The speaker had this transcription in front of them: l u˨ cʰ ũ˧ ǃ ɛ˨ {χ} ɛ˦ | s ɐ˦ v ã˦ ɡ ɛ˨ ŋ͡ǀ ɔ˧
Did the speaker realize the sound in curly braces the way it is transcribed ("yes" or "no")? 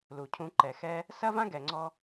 no